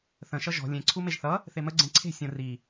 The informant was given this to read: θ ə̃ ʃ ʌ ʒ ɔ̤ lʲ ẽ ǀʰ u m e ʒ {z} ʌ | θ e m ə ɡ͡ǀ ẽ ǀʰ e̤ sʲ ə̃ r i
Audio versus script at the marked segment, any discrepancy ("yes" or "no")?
yes